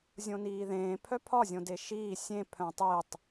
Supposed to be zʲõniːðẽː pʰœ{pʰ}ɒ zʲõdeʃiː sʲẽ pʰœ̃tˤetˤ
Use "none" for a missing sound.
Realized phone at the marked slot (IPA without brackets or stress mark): pʰ